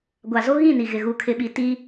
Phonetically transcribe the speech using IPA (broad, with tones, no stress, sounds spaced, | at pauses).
ɡʷ a˨ z o˦ ɣ ĩ˦˨ n i˨ ɣ ɪ˨ ɣ u˨ kʰ ɪ˨ ɓ i˨ t i˦